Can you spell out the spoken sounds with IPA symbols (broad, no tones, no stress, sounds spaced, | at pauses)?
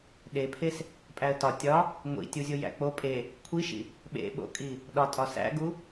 ɗ e pʰ e s | pʼ æ ə̯ t ɒ tʲ ɒ | ŋʷ ḭ tʲ u zʲ o j æ̰ k͡p o pʼ e | kʷʰ i ʃ ḭ | ɓ ḛ ɓ o̰ kʼ i | ɗ ɒ tʼ ɒ s æ̰ ɡ u